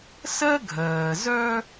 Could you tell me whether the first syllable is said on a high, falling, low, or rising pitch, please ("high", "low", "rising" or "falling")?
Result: high